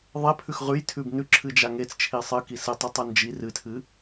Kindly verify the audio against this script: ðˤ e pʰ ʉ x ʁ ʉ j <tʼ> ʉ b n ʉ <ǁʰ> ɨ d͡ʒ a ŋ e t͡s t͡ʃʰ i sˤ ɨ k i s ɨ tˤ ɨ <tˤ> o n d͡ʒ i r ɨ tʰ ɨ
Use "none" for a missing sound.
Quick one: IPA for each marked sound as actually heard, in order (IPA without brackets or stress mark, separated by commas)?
tʰ, ǁʰ, tˤ